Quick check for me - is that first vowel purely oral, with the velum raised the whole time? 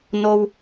yes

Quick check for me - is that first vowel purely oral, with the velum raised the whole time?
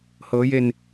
yes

